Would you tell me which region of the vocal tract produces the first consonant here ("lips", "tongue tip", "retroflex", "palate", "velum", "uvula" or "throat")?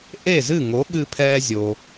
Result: throat